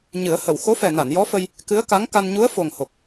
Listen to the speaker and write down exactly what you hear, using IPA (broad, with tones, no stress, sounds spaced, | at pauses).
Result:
ɲ ɨ˨˩˦ ə̯ h ə˨˩˨ w x o˧˥ f ɛ˨˩ n a˨˩˨ n j ɔ˧˥ f ə˧ j | k ɨ˧˥ ə̯ k a˧˥ ŋ k a˧ n ɲ u˧˥ ə̯ f o˨˩ ŋ h o˨˩ k̚